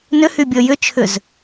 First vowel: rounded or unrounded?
rounded